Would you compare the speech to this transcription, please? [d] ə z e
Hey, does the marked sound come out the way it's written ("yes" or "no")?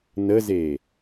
no